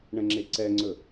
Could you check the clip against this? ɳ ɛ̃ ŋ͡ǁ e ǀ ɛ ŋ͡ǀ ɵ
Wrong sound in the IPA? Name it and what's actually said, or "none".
none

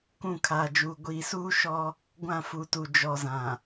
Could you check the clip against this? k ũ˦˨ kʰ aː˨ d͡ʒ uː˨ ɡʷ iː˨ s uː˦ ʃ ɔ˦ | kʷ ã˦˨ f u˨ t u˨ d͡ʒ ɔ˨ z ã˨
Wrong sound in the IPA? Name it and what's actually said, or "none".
kʷ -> ɡʷ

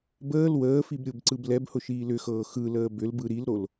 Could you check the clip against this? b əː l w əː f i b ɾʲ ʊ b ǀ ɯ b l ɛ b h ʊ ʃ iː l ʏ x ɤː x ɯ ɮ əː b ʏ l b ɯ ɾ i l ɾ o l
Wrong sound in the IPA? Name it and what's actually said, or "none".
ɮ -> l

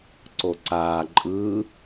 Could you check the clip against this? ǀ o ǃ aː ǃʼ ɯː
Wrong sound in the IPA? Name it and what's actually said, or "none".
ǃ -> ǀ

